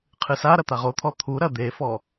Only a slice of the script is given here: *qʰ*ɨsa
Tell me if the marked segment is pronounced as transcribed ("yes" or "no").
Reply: yes